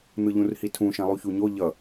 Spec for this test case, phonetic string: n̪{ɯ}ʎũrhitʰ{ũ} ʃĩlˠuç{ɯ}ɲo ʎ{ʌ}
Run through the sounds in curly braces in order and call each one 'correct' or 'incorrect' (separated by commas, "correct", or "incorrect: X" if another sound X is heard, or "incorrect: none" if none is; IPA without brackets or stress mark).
correct, correct, incorrect: u, correct